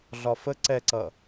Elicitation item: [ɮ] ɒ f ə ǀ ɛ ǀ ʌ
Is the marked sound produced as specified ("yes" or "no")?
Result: yes